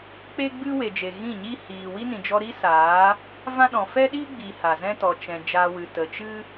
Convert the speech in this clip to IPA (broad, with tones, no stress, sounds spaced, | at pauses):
k͡p e˦ ɡ͡b ɨ˦ w e˨ d͡ʒ e˨ ɣ ĩ˦˨ ɲ iː˦ h iː˨ w i˦ n ĩ˨ d͡ʒ ɔ˧ ɾ i˦ s aː˨˦ | v ã˦ ɗ ɔ̃˨ f ɛ˦ ɗ iː˦ ɡ͡b iː˨ h a˨ z ɛ̃˦ t ɔ˨ t͡ʃ ɛ̃˨ d͡ʒ aː˧ w ɨ˨ t ə˨ t͡ʃ ɨ˦